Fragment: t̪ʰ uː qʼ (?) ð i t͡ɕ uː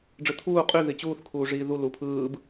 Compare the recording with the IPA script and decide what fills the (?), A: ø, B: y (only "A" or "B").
B